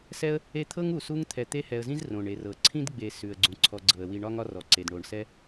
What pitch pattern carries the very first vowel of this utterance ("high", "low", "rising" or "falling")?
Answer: high